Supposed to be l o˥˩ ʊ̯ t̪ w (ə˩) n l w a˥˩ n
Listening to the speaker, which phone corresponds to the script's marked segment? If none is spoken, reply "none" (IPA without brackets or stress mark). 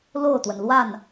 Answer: ə˩